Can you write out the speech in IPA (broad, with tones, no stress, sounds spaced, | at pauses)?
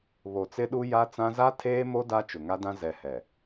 β o˨ t͡s ɪ˦ ɗ u˦ j a˦ t͡s ã˦ z a˦ tʰ eː˦ m o˦ d a˦ t͡ʃ ʊ˨ ŋ a˦ d ã˦ z ɛ˨ h ɛ˨